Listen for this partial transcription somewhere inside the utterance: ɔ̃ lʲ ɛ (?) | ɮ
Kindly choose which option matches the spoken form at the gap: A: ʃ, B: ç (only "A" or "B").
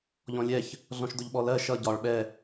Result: B